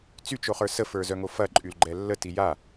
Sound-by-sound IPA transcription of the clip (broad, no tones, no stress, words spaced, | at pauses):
t͡syt͡ʃoχə˞ səfə˞zœŋo fɐǃʼylɡ͡ǃɛ lːəti ja